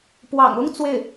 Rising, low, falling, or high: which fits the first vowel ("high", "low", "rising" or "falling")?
low